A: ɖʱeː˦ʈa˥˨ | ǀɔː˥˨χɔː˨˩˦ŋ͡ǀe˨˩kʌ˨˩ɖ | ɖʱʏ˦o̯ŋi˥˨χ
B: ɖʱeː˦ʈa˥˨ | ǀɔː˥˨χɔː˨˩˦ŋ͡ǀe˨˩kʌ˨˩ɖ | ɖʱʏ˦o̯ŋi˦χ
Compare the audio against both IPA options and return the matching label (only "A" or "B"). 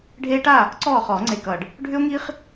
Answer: B